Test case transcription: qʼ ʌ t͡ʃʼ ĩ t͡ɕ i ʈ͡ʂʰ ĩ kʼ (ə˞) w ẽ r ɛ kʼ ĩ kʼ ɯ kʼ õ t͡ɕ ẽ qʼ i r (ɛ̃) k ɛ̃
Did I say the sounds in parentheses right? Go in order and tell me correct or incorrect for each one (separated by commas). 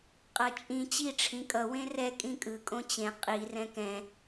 incorrect, correct